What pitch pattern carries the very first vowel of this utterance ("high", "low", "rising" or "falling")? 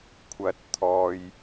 rising